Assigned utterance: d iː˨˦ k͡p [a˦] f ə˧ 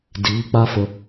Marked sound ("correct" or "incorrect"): correct